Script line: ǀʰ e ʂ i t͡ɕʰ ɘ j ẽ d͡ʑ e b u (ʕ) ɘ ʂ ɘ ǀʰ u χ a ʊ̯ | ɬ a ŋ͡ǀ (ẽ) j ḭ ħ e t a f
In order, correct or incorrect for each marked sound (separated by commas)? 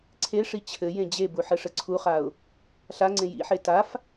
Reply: incorrect, correct